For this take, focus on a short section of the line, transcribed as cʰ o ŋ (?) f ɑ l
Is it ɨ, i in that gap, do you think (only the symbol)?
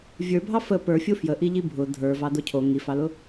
i